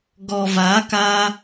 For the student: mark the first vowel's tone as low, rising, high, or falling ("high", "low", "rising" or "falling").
low